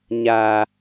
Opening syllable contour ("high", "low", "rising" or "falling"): low